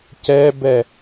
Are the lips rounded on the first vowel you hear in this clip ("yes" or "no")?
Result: no